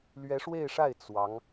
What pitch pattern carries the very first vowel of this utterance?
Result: rising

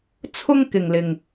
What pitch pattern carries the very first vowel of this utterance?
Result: high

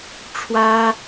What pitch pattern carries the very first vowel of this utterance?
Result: high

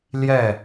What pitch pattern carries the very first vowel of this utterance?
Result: falling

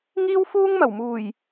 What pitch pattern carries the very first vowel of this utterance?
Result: high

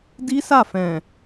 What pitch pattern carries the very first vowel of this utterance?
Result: high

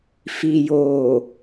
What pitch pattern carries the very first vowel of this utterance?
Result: low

